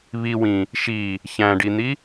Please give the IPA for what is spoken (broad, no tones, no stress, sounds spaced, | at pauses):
β i w ĩ | ʃ i | ç æ̃ ɖ i n̪ i